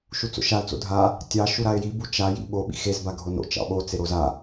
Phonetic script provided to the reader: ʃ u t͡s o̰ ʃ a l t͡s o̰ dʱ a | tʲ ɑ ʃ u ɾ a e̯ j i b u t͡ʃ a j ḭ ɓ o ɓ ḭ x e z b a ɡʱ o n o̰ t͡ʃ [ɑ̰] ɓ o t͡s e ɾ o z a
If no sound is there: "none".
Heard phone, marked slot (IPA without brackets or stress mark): ɑ̰